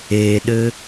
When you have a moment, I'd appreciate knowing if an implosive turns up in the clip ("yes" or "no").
yes